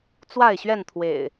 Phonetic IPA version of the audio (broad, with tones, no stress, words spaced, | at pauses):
t͡swa˥˨ɪ̯ɕɥɛ˥˨nt̪ʰwḛ˨˩ɪ̯